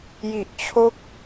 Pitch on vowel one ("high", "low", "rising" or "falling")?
low